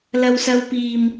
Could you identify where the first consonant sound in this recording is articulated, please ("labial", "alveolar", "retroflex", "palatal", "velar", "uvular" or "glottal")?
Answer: alveolar